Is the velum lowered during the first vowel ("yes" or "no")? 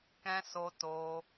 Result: yes